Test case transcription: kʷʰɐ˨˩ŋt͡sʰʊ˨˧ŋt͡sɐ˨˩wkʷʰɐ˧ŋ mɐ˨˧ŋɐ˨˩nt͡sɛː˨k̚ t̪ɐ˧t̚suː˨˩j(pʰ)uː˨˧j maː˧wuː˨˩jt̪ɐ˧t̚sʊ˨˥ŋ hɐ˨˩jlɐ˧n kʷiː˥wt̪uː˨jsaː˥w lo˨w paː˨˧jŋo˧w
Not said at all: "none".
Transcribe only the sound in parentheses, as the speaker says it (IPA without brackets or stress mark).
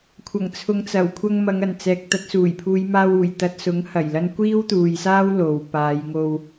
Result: pʰ